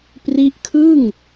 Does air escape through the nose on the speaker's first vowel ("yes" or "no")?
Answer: no